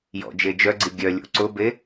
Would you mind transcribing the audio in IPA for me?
j ɔ̰ d͡ʒ e d͡ʒ œ ɡ͡ǀ i ɡʲ œ lʲ o̰ ǀ ʊ b e

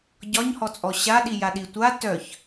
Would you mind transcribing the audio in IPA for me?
ɟ ɒ ɲ h ɔ t͡sʼ ɔ ɕ a ɗ i j a ɗ i tʷ a t œ ç

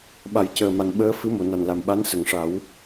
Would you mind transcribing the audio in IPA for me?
ɓ a˨˩˦ j c əː˨˩ m a˨˩ n ɓ əː˧˥ f ɨ˧˥ m o˨˩˨ n a˨˩ n l a˨˩ m ɓ a˧˥ n s ə˨˩˨ ŋ ʂ a˨˩˦ w

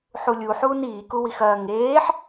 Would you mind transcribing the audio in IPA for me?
ħ u lʲ u ħ uː n iː k u w i x ɐː ŋ eː ħ

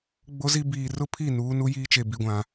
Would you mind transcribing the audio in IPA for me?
ɡ͡b o˦ z i˦ b iː˨ r ʊ˦ pʰ i˦˨ n uː˨˦ n u˦ j iː˦ t͡ʃ e˨ b i˨ ɡʷ ã˨

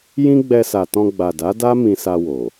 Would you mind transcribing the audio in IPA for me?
j ĩ˦ ɡ͡b ɛ˧ s a˨ t ɔ̃˧ ɡ͡b a˨ d a˨˦ d a˦ m ĩ˧ s a˧ w o˨

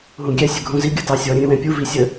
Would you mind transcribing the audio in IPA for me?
ɦ ũ ɡʲ ɛ sʲ ə ɡʱ ũ z i ɡʲ ɯ t ɑ sʲ ɔ ɾʲ ə̃ ɾʲ ə̃ w ɛ̃ pʲ u v i sʲ ə

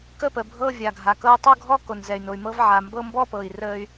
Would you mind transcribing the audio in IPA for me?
k ə˥˧ p ə˩ bʱ ɤ˥˧ vʲ a˩ ɡʱ a˩ k ɤ˥˧ y̯ tˤ o˥˧ ɡʱ ɔ˥˧ k o˩ n z ɛ˩ y̯ n o˩ y̯ m ɤ˥˧ v ʕ a˩ m b ɤ˥˧ m b ɔ˥˧ p ɤ˩ i̯ r ə˥˧ y̯

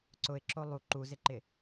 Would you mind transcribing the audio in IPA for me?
ǀ ʊ ɪ̯ ǁ o lˠ u ǃ u z ɪ ǃ ɪ

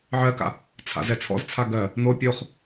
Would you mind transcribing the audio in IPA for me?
ʕ ɜ k a̰ | t͡sʰ a̰ z ɛ t͡sʰ ɔ̰ z t͡sʰ a ɡ ɜ | n o pʲ o χ

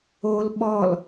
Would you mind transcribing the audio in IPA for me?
o l ɓ ɔ l

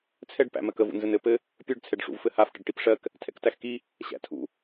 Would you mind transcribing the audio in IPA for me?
t͡sʰ ɛ ɖ p æ̰ m ɜ k ə v ṵ n z ɘ n ɘ p ɘ | pʲ ə˞ ɖ t͡sʰ ɛ ɖ ʂ ṵ v f ɘ h a f ʈ ə ɖ ʈ i p ʂ ɜ k | tʰ ɛ̰ k t æ x k i | ɕ æ̰ tʰ ṵ

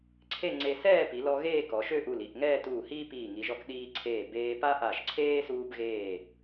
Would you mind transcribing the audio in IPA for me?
ǀʰ e˥˧ ŋ͡ǀ e˧ s ɛː˥˧ p i˩˧ l ɔ˧ ɣ eː˥˧ k ɔ˩˧ ʃ ø˥˧ ʔ u˧˩ l i˧˩ ʔ ŋ ɛː˥˧ t uː˧˩ h iː˥ p iː˧˩ ŋ i˩˧ ʒ ɔ˧ k ɗ iː˧ ǀʰ eː˧˩ b eː˧ p a˥ ʔ a˧˩ ʃ ǀʰ eː˥ s uː˧ b ɣ eː˧˩

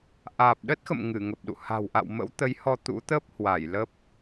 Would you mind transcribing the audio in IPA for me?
ʔ aː˨˩ p̚ ɗ ə˦˥ t̚ x ə̰˧˨ m ŋ ɨ˧˩ ŋ ə˨˩ p̚ ɗ ṵ˧˨ h a̤˨˩ w ʔ a̰˧˨ w m ə̰˧˥ w t̪ ə˨˦ j h ɔ˧ t̪ ṵ˧˥ t̪ əː˦˥ p̚ h w a˧˩ j l ə˦˥ p̚

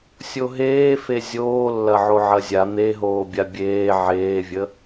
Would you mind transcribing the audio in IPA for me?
sʲ o ɦ eː f e zʲ oː lː ɐ ʕ o ʕ ɐ zʲ a n̪ e ɦ oː bʲ a bʲ eː ʕ eː vʲ ə

